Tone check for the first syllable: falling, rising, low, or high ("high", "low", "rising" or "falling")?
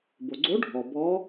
low